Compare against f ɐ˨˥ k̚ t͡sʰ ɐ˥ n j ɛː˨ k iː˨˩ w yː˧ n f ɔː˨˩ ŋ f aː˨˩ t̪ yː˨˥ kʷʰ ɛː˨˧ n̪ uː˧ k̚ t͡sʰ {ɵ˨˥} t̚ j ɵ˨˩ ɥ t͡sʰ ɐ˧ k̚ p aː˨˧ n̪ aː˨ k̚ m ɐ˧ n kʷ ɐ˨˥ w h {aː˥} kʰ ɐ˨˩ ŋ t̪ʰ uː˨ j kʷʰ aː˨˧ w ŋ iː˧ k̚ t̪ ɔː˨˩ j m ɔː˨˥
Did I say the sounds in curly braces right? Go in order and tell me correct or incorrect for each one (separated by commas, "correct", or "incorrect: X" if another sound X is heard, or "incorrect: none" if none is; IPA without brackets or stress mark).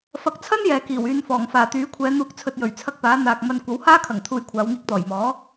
incorrect: ɵ˧, correct